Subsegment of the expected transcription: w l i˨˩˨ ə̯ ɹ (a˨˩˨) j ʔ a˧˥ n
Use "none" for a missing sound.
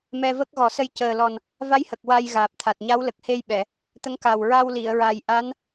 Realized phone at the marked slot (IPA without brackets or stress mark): a˨˩